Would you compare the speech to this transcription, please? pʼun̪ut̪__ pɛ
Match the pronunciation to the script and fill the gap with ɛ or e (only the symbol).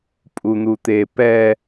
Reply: e